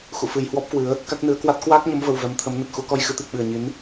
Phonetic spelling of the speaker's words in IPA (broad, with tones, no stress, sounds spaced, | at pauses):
x ṵ˧˨ f ɨ˨˩ j h w ɔ˦˥ p̚ k w ɨ˨˦ ə̯ | k a˦˥ k̚ n ɨ˨˦ ə̯ k w a˦˥ t̚ k w aː˦˥ k̚ ɲ ə˨˦ m v ə˨˩ w v ɛ˨˦ m t̪ʰ ə˨˦ m n ə˨˩ t̚ x u˧ k ɔ˧ j x ɨ˨˦ t̪ i˨˩ k̚ ɓ ɨ˨˩ ə̯ ɲ i˨˦ n